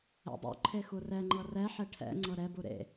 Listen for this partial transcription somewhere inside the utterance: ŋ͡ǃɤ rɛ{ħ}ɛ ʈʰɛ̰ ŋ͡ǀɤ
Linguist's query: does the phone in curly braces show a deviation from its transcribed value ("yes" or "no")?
no